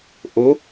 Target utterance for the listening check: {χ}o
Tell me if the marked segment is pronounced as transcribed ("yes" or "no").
no